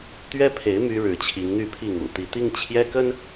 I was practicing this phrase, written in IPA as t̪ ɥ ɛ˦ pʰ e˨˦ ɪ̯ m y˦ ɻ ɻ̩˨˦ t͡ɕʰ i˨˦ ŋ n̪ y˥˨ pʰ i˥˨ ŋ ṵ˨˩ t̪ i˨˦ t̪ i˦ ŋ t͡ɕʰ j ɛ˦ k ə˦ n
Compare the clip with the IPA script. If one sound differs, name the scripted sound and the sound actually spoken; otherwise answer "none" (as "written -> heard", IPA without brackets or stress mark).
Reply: none